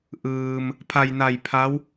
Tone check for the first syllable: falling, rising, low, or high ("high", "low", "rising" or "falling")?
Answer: low